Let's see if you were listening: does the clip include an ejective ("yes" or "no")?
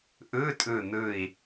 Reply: yes